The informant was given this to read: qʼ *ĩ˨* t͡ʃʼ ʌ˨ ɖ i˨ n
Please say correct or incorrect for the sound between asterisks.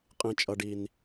correct